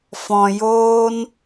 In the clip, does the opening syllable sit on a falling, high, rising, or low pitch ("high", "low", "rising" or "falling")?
low